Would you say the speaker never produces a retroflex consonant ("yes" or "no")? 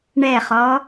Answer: no